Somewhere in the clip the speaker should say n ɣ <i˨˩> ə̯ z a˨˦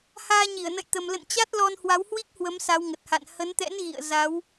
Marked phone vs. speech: incorrect: ḭ˧˨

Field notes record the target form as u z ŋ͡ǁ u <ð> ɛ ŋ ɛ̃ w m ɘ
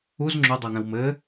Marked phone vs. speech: incorrect: dˤ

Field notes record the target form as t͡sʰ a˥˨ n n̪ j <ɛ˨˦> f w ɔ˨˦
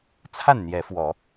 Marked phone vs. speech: correct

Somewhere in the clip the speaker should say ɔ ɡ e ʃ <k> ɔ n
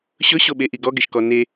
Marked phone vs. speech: correct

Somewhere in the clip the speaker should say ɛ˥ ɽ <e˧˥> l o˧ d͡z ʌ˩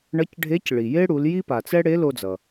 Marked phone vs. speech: correct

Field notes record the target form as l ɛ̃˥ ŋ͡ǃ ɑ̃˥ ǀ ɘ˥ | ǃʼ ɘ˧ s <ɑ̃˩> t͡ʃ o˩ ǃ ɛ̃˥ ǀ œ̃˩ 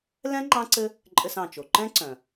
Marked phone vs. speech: correct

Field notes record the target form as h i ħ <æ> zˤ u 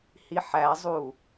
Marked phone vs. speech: correct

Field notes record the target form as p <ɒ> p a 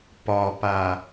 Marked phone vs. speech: correct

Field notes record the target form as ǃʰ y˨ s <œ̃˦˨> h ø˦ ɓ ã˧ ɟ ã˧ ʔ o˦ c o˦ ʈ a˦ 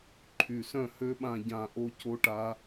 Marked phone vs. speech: correct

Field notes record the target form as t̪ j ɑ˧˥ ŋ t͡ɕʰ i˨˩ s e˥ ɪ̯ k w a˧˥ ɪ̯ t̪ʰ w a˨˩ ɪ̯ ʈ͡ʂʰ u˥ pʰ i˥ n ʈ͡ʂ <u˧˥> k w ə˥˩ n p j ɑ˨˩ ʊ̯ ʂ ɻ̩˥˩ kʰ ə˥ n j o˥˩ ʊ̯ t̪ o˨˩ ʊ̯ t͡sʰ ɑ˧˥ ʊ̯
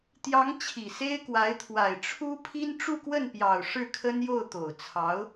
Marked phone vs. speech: incorrect: u˥˧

